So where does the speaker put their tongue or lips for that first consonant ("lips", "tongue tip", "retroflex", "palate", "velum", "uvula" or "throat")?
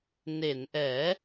tongue tip